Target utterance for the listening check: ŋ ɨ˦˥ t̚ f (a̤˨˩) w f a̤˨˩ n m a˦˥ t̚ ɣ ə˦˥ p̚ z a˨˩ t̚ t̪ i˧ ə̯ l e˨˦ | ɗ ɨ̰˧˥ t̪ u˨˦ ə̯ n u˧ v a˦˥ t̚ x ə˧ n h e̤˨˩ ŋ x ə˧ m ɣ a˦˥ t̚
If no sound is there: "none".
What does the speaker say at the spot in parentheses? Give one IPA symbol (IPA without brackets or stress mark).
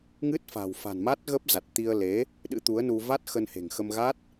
a̤˨˩